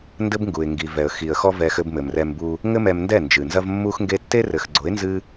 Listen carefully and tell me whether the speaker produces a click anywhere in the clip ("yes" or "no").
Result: yes